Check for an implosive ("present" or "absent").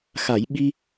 present